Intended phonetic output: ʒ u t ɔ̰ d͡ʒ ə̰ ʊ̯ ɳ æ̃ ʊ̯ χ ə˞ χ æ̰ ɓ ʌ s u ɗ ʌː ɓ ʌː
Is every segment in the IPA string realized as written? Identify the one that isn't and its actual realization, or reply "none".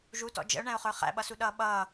none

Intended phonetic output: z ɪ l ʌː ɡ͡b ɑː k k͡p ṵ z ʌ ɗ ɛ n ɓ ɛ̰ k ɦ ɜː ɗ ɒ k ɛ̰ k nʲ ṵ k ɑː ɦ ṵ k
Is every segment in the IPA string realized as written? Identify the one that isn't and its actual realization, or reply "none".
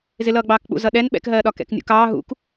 none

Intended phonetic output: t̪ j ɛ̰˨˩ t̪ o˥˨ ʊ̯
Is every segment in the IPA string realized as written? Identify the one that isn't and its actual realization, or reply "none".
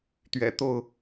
j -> ɥ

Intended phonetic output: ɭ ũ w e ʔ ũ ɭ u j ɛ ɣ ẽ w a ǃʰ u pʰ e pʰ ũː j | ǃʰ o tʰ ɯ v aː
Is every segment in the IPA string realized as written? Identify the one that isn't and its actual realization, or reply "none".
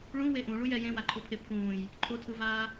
ɣ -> j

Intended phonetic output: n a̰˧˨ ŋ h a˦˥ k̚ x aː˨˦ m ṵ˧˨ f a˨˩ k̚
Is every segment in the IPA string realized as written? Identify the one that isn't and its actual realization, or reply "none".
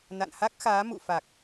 ŋ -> n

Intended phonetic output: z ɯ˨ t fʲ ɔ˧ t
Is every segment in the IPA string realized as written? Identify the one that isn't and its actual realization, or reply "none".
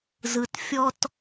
none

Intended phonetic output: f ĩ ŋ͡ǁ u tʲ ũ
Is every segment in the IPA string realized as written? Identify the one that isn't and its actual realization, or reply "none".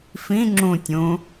u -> ũ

